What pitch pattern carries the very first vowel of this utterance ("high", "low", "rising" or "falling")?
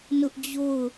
high